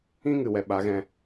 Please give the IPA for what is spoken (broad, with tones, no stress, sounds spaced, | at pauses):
ĩ˦ ŋ ɨ˨ w ɛ˨ ɓ a˨˦ ɣ ɛ̃˧